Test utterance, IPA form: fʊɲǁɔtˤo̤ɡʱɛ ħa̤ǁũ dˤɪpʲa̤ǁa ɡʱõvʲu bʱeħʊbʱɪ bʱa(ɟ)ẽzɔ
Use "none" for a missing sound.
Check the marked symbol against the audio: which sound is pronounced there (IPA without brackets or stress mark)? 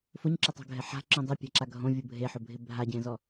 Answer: ɟ